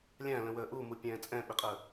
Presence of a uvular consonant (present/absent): present